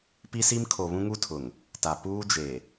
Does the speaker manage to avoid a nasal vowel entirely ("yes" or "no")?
no